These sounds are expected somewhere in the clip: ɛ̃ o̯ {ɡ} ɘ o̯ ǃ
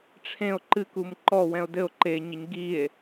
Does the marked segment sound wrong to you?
yes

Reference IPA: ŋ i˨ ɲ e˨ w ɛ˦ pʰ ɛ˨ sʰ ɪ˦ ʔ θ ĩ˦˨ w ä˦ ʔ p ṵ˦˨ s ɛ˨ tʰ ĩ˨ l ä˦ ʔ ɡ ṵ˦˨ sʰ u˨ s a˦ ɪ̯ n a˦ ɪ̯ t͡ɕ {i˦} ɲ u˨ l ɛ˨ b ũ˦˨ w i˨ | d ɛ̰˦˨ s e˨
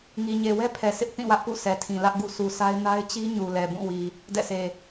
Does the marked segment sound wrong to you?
no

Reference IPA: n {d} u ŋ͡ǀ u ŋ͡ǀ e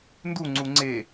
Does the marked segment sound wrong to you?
no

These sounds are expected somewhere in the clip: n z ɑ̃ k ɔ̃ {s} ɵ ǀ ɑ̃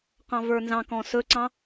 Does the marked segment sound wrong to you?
no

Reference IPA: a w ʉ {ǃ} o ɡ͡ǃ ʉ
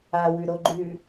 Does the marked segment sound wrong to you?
yes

